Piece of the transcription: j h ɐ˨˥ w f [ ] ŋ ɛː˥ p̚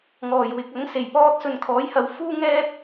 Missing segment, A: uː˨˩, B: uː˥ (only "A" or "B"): B